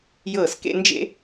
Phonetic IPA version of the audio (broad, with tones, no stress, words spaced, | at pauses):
jɤː˧˩skḛ˥˧ nd͡ʒḛ˧